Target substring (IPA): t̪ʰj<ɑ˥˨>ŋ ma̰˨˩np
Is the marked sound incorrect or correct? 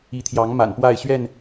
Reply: incorrect: ɑ˨˦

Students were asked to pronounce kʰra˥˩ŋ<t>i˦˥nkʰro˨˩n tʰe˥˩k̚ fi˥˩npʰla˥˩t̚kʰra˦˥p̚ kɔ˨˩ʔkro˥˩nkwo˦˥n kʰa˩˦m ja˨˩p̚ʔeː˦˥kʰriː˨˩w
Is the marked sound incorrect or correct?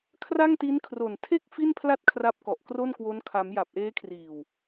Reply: correct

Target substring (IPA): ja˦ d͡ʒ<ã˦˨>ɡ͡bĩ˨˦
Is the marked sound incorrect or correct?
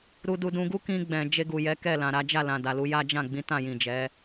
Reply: correct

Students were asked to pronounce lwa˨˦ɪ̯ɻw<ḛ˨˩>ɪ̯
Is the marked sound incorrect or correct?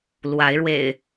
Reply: correct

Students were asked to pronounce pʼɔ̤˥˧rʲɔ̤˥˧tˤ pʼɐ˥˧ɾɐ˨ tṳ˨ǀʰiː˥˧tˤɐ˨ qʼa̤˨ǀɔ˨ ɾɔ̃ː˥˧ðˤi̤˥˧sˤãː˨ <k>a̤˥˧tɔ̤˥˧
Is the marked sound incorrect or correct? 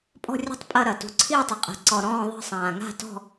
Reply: incorrect: ŋ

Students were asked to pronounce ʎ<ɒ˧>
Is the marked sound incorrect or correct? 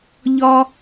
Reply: correct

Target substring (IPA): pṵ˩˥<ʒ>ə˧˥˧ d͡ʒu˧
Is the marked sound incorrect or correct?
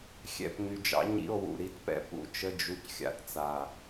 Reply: incorrect: t͡ʃ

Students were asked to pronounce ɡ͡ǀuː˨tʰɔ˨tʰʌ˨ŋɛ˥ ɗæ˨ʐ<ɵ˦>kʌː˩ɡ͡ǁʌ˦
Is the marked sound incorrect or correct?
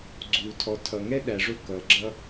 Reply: incorrect: ʊ˦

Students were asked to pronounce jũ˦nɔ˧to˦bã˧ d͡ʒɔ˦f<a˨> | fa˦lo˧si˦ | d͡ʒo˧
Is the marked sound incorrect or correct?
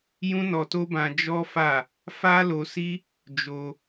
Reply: incorrect: a˦˨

